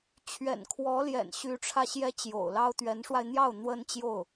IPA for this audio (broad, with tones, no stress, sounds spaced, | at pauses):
t͡ɕʰ ɥ ɛ̰˨˩ n kʰ w ɔ˧˥ l j ɛ̰˨˩ n ɕ y˧˥ ʈ͡ʂʰ ä˧ ɕ j ɛ˥ t͡ɕ j o̰˨˩ ʊ̯ l ɑ˥ ʊ̯ t̪ ɥ ɛ˧˥ n ʂ w a˧ ɪ̯ n̪ j ɑ˥˩ ʊ̯ n̪ w ə˥ n t͡ɕ j o˥˩ ʊ̯